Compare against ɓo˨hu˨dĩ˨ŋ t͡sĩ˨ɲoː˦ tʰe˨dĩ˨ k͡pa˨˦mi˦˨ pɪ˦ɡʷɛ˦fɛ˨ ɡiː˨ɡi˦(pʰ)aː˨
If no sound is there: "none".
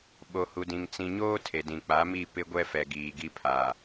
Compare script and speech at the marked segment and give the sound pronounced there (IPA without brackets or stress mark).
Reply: pʰ